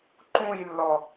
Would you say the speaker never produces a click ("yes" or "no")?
no